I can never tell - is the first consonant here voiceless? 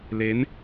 no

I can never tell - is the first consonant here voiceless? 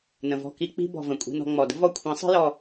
no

